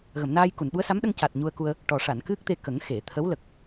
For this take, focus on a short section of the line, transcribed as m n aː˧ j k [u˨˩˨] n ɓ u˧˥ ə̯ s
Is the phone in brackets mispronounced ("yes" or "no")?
no